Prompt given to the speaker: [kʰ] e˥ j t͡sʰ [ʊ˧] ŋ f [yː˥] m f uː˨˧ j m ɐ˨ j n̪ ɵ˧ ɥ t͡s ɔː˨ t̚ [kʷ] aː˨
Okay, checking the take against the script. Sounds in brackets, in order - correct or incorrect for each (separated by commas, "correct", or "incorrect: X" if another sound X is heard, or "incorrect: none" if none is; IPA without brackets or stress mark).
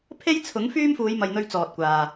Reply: incorrect: pʰ, incorrect: ʊ˨˥, correct, correct